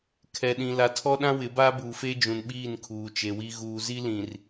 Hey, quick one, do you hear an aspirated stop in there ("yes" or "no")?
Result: yes